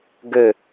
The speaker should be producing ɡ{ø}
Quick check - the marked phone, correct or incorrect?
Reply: correct